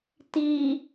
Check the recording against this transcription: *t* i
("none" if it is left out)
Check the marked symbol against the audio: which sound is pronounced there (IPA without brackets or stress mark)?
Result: t